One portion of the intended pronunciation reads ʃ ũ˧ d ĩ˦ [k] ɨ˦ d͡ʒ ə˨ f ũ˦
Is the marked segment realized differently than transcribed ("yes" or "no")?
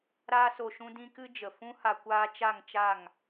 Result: no